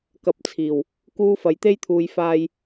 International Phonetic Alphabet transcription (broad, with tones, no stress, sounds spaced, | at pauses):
k ɐ˧ p̚ t͡sʰ iː˨ w | k uː˥ f ɐ˧ j t̪ e˥ j t̪ʰ uː˧ j f aː˧ j